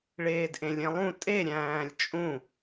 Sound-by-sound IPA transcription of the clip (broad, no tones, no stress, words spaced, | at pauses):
ɭeːdʔẽlʲẽlˠũ tʼe ɾʲæ̃ːlʲt͡ʃʼũ